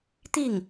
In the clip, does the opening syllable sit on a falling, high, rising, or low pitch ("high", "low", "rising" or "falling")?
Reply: falling